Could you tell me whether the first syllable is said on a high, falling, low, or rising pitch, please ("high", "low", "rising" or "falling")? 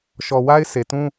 low